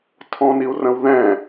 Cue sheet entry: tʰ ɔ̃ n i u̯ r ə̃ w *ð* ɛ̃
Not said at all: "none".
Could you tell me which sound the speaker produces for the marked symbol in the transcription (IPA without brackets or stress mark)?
ð